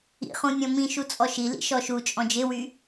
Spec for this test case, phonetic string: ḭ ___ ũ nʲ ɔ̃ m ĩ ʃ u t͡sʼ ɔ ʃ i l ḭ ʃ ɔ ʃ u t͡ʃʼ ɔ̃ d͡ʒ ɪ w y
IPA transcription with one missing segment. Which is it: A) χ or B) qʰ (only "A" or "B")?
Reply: A